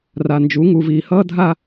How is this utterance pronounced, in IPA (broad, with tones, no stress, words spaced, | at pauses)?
ra˨nd͡ʒu˨˦ ŋu˨viː˨hʌː˦ dʱa˦